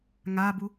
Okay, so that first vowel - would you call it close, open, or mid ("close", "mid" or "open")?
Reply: open